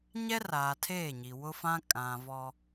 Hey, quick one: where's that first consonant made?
palate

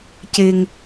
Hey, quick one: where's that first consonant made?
palate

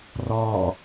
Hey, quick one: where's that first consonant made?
tongue tip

